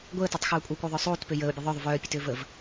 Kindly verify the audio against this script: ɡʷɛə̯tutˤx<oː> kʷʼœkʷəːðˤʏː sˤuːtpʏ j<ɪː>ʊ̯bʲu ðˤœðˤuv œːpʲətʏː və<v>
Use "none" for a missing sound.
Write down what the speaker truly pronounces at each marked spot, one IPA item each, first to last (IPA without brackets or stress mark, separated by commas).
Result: uː, əː, v